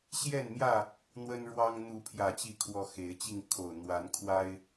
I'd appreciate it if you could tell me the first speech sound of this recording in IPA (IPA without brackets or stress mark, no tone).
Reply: ɕ